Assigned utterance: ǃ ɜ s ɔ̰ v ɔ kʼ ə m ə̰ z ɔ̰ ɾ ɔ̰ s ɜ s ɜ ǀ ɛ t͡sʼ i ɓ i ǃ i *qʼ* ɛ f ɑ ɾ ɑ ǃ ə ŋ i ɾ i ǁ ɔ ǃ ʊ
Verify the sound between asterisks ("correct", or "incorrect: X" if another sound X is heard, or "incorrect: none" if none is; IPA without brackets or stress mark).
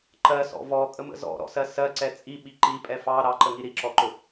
incorrect: pʼ